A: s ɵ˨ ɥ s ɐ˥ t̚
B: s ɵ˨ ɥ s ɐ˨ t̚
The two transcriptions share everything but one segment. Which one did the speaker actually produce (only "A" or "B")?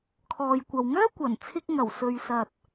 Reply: B